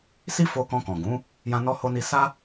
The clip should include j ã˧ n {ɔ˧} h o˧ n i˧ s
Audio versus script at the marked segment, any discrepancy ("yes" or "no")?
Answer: no